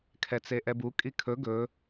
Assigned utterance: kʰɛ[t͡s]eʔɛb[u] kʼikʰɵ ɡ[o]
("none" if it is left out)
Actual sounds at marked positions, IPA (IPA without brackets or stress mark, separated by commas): t͡s, u, ɵ